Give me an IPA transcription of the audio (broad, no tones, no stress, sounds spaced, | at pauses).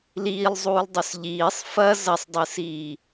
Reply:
l iː lˠ zˤ uː lˠ dˤ ɵ s ʎ iː sˤ f ɐ z ɐ sˤ dˤ ɨ s iː